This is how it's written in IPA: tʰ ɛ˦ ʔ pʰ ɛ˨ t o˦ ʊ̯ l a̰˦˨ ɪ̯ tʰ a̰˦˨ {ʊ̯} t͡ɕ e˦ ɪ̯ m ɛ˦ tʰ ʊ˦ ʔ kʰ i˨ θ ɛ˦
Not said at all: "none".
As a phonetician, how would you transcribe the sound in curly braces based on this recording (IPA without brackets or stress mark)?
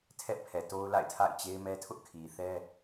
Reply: ɪ̯